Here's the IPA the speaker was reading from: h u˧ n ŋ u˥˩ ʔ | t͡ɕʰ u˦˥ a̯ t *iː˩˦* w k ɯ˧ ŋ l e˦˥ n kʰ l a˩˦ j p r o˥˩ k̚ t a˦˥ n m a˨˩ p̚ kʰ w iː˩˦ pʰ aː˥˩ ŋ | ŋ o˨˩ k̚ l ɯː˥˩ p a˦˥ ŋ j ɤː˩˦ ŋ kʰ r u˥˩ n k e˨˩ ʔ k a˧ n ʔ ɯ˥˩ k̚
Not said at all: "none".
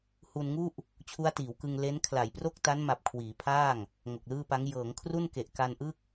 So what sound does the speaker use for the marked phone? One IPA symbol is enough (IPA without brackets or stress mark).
iː˩˦